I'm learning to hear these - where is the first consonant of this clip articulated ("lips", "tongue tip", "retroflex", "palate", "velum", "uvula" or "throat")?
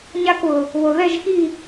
palate